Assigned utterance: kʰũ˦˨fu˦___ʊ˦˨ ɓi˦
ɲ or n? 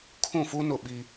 n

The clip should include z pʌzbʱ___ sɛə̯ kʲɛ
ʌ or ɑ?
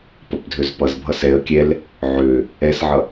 ʌ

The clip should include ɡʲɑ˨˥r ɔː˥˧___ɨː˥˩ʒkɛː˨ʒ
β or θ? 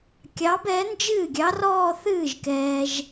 θ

